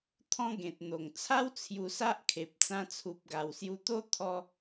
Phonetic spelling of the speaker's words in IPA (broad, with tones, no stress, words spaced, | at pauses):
t̪ʰɔ̃˦ɡẽ˨t̚n̪o˨˩ŋ t͡sʰa˦w t͡sʰju˧sa˦ʔkʰe˨p̚ t͡sã˧t͡sʰu˨p̚ɡa˨˩wsju˧ t̪o˦t̪ʰɔ˧